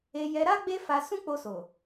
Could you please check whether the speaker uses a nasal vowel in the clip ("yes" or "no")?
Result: yes